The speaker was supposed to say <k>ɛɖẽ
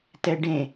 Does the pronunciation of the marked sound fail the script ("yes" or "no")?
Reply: yes